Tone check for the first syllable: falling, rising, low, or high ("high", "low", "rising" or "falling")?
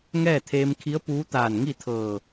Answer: falling